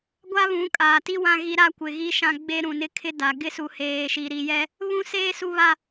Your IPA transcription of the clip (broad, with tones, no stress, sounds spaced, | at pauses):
ɡʷ a˦ β ũ˨˦ kʼ aː˨ t i˦ w ã˦ ɣ i˦ ɾ a˦ kʷ ɪ˨ ɣ i˦ ʃ ã˦ ɡ͡b e˦ ɾ ũ˨ n ɪ˦ kʰ ɪ˦ d a˨ ɡ ɪ˦ s u˨ h eː˨ ʃ i˨ ɾ i˨ j ɛ˦ | β ũ˦ s eː˦ s u˦ β a˦